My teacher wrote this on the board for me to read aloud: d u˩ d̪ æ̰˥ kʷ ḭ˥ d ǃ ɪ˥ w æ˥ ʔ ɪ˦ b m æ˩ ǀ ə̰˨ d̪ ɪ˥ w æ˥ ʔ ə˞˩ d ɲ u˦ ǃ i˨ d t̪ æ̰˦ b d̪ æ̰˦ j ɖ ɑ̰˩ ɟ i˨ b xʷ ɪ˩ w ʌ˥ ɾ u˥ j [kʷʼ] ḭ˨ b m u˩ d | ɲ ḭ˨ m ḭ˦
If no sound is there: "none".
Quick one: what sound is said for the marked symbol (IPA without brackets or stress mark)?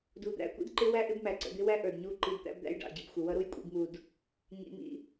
kʷʼ